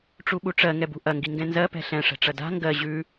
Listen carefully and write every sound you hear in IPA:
ʈ͡ʂ u ɓ u ʈ͡ʂ ɜ ŋ ɛ b ṳ ʔ ɐ ŋ ɡ i ŋ ɡ ɛ̃ n z ɜ p ɛ̤ ɬ ɛ̃ ʂ ɛ̤ ʈ͡ʂ ɐ d a̤ ŋ ɡ ɜ ʑ ʉ

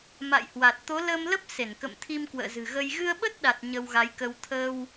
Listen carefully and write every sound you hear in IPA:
m a̰˧˨ j h w a˨˩ t̚ t̪ o˨˦ l əː˧ m l ə˦˥ p̚ s e˧˩ n k ə̰˧˨ m t̪ʰ i˧ m k w ə̰ː˧˨ z ɨ̤˨˩ ɣ ə˧ j ɣ ɨ˧ ə̯ ɓ ə˦˥ t̚ ɗ a˨˩ t̚ ɲ ə˧ w ɣ a˨˦ j k ə˧ w t̪ʰ ə˧ w

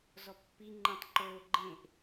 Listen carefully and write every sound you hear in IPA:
z ɔ pː i ŋ͡ǃ ẽ tˤ ǃ oː ɡ͡ǃ ẽ ʔ

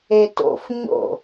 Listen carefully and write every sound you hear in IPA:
e t o̰ f ɲ o̰

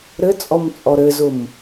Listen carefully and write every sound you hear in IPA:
ɾ ɘ t͡sʼ ɔ m t͡sʼ ɔ ɾ ɘ z ʊ m

